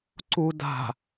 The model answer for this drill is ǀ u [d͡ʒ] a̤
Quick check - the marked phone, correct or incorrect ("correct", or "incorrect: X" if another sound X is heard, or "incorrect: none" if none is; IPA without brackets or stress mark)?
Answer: incorrect: d